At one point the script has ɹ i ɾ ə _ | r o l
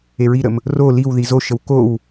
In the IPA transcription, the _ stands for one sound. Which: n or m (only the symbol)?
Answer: m